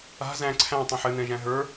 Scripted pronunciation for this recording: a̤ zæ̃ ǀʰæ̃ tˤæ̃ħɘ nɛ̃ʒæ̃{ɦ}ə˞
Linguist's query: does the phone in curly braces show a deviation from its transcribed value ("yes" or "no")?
no